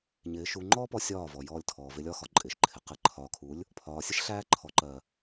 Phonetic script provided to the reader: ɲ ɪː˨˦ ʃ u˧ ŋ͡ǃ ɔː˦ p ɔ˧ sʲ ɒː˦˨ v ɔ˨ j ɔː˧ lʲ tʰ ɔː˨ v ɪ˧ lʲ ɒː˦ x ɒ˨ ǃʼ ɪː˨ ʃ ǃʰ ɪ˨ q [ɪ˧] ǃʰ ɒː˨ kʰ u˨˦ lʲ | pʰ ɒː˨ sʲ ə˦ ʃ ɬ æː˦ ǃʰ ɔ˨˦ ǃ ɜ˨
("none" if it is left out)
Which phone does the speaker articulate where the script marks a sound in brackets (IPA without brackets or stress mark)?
ɪ˧